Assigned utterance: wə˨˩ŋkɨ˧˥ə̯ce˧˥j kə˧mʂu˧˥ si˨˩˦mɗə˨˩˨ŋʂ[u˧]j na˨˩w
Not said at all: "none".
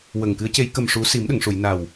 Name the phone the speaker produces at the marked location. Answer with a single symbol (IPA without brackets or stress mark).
u˨˩˨